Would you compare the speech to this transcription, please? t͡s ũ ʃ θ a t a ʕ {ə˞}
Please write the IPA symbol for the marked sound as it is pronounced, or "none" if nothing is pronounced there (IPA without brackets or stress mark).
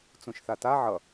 ʌ